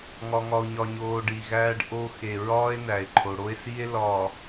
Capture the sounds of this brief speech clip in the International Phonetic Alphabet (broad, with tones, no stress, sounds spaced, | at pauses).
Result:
ŋ ɒ˨ ŋ ɒ˨ o̯ ɲ ɒ˨ ɲ oː˨ ɖ i˨ ɣ æː˦ ɖ ʔ o˦ x e˨ ɹ ɒː˦ e̯ n æ˨ e̯ ǃʰ o˨ ɽ o˦ e̯ s i˦ e̯ l ɒː˨